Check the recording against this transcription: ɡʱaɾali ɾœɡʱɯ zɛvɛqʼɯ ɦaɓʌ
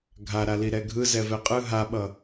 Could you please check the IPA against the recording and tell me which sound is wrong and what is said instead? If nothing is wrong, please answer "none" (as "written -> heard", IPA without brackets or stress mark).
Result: œ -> ɛ